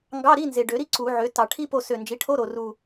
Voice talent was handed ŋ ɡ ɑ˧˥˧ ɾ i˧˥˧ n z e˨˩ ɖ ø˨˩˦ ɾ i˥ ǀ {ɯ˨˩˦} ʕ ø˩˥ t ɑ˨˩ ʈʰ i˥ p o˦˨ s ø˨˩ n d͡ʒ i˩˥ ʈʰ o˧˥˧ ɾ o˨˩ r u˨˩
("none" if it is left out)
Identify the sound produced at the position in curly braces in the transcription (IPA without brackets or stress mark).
u˨˩˦